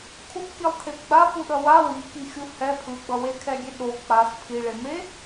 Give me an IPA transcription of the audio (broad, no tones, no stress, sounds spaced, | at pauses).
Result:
kʰ u p k i lˠ t̪ʰ e p ɡ͡b a p u ɗ ʌ w a w i k i xʲ u h ɛ pʰ ɯ ɡ͡b ʌ w e kʰ ɛ ɡʲ e ɗ o k͡p a s pʰ i ɭ e m e